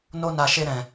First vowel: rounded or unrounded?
rounded